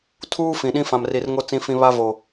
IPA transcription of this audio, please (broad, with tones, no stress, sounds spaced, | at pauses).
tʰ uː˦ f ĩ˨ ɗ ĩ˦ f ã˨ m r i˨ r ŋ o˦ t͡s ĩ˦ f ĩ˦ β a˦ v o˨